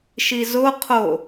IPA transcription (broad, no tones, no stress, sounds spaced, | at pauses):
ʃ i z o qʰ o